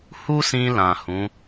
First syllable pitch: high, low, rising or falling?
high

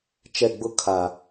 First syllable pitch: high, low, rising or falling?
falling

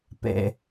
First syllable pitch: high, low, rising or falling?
low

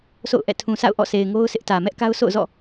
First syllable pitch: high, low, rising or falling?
falling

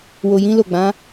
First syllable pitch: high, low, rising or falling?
low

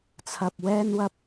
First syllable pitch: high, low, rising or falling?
low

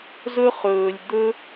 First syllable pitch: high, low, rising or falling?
high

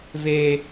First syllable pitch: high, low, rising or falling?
high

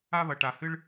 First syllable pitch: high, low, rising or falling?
high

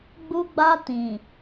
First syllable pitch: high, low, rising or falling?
high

